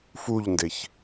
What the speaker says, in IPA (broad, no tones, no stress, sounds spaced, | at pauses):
f u ʎ n d e ç